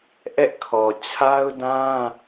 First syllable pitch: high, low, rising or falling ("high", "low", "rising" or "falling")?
high